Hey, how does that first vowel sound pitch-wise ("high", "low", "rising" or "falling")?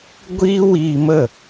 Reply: high